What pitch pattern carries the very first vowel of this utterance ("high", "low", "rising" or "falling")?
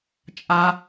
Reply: high